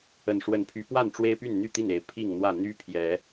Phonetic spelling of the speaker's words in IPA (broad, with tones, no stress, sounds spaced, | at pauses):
ə˨˩ n ʂ w ə˨˦ n pʰ y˨˦ p w a˥˨ n ʈ͡ʂ w e˦ ɪ̯ p y˥˨ n n̪ y˥˨ t̪ i˥˨ n e˨˦ ɪ̯ pʰ i˥˨ ŋ n̪ w ä˥˨ n̪ y˦ pʰ j ɛ˨˦